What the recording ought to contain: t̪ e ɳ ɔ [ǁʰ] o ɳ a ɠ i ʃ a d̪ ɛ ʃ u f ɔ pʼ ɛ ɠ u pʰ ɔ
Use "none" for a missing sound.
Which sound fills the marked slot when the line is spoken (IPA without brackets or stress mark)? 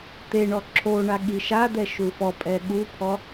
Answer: ǁʰ